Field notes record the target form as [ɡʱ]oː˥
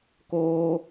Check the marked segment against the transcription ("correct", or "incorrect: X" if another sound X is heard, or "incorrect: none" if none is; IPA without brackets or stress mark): incorrect: k